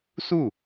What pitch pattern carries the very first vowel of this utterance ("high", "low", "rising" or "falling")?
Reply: falling